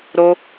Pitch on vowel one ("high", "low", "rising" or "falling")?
high